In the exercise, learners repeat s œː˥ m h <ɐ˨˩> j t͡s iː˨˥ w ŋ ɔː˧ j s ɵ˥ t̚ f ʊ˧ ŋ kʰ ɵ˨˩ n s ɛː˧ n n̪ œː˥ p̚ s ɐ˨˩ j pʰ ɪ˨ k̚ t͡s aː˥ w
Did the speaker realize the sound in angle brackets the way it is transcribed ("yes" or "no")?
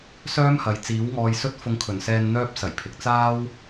no